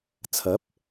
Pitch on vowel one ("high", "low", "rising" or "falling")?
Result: rising